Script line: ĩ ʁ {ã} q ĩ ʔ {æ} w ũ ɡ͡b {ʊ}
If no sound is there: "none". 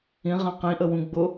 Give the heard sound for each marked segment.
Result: ã, ə, ʊ

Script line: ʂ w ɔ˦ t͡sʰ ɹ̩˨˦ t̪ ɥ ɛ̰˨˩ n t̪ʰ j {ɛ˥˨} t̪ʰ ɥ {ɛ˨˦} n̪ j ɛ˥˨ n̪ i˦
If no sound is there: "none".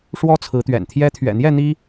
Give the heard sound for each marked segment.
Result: ɛ˦, ɛ̰˨˩

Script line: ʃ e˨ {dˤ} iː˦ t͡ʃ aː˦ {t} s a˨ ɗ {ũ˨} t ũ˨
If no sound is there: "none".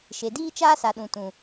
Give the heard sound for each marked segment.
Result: d, none, ũ˨

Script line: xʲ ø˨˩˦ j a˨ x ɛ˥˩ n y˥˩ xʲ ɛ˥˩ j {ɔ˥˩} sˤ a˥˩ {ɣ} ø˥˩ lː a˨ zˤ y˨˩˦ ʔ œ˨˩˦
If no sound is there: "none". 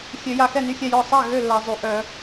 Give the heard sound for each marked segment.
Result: ɔ˥˩, ɣ

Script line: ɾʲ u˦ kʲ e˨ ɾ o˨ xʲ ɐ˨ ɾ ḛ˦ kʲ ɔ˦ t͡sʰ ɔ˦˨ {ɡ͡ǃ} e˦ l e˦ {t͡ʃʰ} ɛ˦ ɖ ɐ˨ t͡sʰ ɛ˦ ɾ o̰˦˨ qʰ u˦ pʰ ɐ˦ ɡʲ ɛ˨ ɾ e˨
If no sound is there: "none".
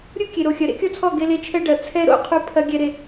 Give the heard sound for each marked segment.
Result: ɡ, t͡ʃʰ

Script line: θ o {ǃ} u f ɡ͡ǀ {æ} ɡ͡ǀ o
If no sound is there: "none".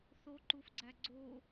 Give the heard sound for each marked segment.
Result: ǃ, æ

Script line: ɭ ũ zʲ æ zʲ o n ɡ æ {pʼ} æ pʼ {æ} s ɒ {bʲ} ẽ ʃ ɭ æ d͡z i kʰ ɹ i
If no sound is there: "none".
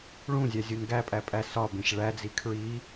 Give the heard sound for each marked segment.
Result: pʼ, æ, b

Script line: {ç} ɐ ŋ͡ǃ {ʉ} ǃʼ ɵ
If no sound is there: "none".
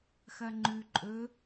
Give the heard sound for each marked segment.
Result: x, ʉ

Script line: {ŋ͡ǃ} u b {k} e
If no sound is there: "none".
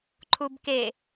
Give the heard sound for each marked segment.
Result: ǃʰ, k

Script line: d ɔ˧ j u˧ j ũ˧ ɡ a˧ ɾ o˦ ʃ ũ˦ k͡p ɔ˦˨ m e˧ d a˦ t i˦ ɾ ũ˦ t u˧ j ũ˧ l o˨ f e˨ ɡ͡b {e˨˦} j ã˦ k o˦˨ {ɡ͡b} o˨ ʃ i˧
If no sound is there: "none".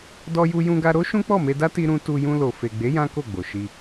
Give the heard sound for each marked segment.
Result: e˨˦, ɡ͡b

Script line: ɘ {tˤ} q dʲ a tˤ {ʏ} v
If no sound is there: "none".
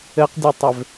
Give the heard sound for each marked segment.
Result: none, ʏ

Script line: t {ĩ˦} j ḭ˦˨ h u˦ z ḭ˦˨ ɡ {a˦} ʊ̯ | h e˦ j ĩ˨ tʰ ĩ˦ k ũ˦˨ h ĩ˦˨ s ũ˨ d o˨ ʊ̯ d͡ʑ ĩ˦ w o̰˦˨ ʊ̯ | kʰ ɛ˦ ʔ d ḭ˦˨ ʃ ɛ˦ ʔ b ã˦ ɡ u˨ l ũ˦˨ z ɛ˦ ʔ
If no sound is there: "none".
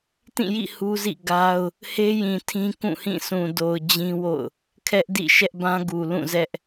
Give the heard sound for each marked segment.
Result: ĩ˦˨, a˦

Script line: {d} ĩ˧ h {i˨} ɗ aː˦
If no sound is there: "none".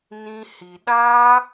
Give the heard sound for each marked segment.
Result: n, i˨

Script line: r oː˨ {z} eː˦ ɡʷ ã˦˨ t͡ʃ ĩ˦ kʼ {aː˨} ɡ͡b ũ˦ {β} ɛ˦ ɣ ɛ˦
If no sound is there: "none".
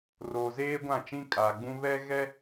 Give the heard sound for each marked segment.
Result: z, aː˨, β

